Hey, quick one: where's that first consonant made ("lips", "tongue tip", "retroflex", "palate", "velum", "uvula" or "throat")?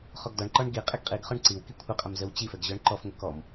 uvula